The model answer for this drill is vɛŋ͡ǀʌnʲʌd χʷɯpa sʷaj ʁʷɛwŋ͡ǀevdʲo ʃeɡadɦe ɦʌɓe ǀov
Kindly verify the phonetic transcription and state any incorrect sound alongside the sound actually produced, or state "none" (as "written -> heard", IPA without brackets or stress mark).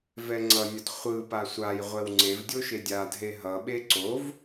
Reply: ɡ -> dʲ